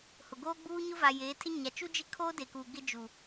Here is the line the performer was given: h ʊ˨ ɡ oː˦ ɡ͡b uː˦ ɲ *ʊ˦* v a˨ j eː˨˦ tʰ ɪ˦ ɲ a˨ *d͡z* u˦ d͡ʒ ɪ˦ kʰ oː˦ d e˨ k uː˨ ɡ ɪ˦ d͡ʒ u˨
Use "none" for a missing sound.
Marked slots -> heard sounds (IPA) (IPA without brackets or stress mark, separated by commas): ʊ˦, t͡ʃ